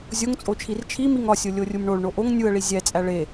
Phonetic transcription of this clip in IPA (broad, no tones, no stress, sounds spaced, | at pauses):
zʲ o ŋ t͡sʼ o t͡ʃʰ i r t͡ʃʰ i m i ŋ ɒ sʲ o lʲ o rʲ u m ɳ o ɭ ɳ o ʔ o ŋ nʲ u ə̯ ɭ i zʲ æ t͡sʼ æ ɭ e